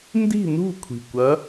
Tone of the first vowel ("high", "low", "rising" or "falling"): falling